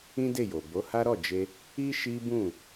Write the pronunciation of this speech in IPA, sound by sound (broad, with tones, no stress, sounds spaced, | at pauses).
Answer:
ĩ˦ d e˦˨ j o˨ b o˨˦ h a˦ ɾ ɔ˦˨ d͡ʒ e˧ | i˦ ʃ i˦ b ũ˦˨